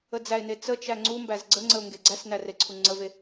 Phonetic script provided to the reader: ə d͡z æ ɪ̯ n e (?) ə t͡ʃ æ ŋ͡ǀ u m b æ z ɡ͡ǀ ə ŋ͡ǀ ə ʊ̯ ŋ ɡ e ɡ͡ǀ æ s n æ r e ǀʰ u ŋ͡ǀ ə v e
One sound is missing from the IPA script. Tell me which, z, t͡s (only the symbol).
t͡s